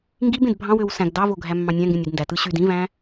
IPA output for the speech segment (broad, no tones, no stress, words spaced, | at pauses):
ŋɡib ẽdbʱɑ̃wøw sæ̃ɡ dɑvo ɡʱæmːɑ̃nʲæ̃ŋɡẽnʲ idndætɯ ɕyd ĩvæ̃